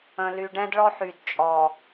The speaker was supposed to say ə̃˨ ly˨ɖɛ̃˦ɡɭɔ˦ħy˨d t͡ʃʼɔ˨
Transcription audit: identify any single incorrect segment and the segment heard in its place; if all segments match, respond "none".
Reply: ɡ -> d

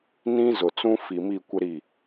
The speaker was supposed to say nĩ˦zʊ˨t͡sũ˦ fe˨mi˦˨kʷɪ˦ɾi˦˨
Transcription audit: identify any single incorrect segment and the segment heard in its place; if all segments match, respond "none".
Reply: e˨ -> i˨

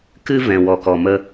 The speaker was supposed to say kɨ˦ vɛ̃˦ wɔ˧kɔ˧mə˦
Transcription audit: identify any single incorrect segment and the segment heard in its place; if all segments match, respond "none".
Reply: none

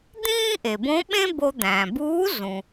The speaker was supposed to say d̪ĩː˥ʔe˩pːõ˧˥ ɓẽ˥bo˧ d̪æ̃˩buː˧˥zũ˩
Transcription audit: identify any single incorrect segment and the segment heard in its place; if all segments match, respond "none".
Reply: pː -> b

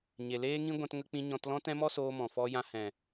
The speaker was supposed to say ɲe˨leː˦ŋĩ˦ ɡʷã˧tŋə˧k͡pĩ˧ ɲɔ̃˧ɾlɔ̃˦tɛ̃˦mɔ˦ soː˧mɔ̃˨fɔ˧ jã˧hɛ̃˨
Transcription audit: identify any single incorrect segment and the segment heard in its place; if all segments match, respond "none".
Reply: ɾ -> t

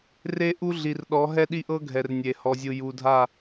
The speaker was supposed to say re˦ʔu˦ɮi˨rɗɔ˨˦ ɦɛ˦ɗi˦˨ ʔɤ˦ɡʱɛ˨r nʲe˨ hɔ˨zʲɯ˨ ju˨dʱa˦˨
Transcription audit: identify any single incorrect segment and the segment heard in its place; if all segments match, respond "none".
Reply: none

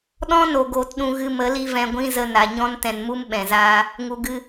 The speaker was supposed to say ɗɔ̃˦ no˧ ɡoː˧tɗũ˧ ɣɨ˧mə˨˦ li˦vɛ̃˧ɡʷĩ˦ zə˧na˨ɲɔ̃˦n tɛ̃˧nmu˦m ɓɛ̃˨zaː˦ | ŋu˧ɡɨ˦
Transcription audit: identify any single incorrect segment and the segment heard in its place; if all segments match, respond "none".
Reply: none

